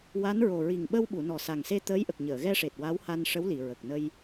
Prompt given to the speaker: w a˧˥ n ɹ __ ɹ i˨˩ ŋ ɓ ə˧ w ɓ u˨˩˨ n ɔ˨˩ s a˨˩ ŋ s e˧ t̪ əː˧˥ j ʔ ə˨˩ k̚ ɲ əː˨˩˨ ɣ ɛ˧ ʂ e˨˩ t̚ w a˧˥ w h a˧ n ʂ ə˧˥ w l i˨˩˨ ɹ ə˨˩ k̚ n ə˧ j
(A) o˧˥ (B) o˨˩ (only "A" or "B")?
B